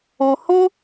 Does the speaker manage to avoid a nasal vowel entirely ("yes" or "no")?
no